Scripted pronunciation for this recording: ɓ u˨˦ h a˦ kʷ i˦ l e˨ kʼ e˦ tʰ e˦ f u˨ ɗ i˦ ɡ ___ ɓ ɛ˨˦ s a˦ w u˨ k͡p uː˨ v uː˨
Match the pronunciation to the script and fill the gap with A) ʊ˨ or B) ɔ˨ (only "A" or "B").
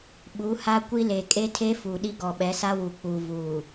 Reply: B